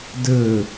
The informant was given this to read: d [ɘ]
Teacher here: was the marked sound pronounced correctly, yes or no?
yes